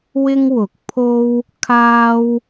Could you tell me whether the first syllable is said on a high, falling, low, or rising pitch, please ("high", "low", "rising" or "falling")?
high